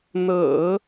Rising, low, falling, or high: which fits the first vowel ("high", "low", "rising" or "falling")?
low